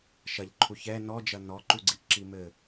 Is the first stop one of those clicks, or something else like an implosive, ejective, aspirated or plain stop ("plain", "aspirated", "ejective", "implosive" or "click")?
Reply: click